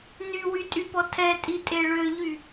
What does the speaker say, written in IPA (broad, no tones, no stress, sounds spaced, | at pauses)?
n y w y tʼ y p ɔ tʰ ɛ tʼ i tʼ e ɭ ø ʎ y